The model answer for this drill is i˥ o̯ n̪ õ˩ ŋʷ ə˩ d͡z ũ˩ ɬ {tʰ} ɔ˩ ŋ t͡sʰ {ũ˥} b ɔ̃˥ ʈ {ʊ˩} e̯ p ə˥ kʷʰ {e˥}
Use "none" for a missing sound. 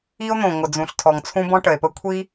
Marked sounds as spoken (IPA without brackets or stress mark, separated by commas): tʰ, ũ˥, ə˩, i˥